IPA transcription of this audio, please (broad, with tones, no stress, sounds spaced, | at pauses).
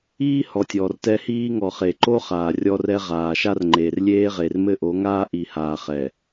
iː˦ h ɔ˨ tʲ ɔː˨ r t ɛ˦ h iː˦ ŋ ɔ˨ χ e˨ ǃ o˦ χ aː˨ rʲ ɔ˦ r ɛ˦ ʁ aː˨ ʃ a˦ r ŋ͡ǃ eː˨ r lʲ eː˦ ʁ e˨ r m ɘ˦ ʔ o˨˦ ŋ aː˦ ʔ i˨ h aː˨ χ ɛ˨